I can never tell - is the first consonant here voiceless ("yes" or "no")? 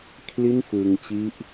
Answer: yes